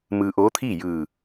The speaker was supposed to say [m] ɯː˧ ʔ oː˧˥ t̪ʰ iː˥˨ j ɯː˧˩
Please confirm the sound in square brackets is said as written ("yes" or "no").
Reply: yes